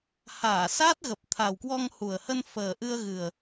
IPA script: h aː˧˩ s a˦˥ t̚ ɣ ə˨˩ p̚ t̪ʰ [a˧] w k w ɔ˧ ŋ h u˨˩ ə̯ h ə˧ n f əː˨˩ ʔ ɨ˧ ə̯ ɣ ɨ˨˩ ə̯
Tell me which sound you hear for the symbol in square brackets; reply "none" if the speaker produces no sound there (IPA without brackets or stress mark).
a˨˩